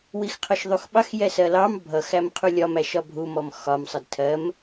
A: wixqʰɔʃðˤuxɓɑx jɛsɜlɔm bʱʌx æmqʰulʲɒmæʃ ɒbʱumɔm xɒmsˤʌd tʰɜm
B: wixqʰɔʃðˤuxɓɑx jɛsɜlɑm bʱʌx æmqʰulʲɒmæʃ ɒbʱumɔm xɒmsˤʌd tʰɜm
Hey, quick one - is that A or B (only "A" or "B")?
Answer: B